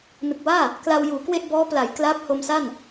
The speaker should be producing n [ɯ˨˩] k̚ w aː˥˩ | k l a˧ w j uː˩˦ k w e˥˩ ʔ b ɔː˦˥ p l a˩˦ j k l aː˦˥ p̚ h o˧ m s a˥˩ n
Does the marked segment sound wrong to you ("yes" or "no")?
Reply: no